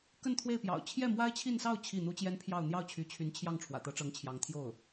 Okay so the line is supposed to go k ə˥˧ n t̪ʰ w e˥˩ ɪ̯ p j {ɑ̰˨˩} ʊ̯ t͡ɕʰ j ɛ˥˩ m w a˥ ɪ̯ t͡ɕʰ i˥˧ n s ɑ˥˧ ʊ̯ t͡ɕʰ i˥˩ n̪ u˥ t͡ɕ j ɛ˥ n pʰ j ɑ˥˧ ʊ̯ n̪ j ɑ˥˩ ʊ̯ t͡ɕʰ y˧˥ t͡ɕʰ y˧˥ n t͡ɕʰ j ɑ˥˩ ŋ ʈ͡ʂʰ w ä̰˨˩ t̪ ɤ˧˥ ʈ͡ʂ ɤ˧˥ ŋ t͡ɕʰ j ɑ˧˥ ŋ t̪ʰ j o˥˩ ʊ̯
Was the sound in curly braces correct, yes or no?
yes